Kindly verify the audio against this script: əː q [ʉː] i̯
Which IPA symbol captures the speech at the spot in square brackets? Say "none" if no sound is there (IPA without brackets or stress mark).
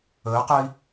əː